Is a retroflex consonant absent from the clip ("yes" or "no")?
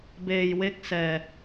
yes